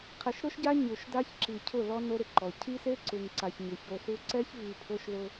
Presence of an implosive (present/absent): absent